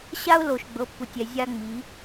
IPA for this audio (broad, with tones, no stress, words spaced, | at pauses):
ɕa˥ʊ̯lo˨ʃ ɡ͡bɤ˨˦pːu˨tʲɛ˨ zʲa˥ ŋ͡mi˨˦